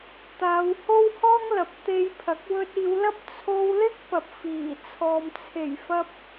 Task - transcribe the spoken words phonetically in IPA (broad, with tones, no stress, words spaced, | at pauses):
t̪aː˨˧w ho˥whɔː˥ŋ lɐ˨p̚t̪e˧jpʰɐ˨˥k̚ wɵ˧t̚iː˨˧wlɐ˥p̚ t͡sʰo˧wlɪ˥k̚ pɐ˨p̚fiː˨˩t͡sʰɔː˨m t͡sʰe˨˩jfɐ˧p̚